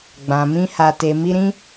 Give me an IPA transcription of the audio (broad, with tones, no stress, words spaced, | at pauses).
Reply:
ɡ͡bã˨ mĩ˧ha˨te˨ mi˧ɾĩ˦